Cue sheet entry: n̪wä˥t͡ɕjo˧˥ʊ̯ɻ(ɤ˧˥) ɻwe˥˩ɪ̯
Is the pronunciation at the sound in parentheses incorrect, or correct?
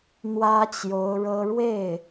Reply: incorrect